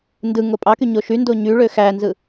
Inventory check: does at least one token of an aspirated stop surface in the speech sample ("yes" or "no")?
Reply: no